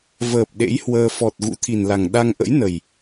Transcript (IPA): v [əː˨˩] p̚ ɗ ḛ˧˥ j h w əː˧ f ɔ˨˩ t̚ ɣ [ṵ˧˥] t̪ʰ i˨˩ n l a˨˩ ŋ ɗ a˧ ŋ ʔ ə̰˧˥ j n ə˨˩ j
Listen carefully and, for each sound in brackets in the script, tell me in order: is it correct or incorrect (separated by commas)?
correct, correct